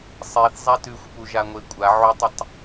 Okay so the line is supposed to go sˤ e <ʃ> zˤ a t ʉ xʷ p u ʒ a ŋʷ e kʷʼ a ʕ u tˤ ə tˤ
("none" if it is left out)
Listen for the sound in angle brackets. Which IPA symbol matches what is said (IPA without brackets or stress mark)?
θ